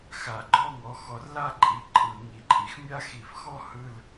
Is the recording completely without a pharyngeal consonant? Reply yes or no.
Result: yes